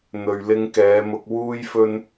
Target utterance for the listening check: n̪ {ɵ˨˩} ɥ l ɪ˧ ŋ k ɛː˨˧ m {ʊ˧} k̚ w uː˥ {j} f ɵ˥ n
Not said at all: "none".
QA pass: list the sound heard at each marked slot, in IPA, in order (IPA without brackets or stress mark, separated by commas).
ɵ˨, ʊ˧, j